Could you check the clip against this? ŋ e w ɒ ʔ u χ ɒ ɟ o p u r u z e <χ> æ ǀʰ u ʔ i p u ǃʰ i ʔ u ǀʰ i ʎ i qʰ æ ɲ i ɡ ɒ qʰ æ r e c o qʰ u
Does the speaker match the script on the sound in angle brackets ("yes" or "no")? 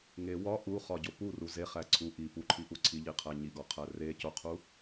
yes